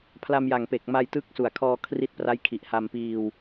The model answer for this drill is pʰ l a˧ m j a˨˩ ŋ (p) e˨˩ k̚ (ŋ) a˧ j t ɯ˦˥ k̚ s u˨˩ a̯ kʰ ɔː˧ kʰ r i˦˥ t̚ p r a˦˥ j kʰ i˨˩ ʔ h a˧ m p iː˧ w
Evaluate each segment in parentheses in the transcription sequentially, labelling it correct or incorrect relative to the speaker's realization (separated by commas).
correct, incorrect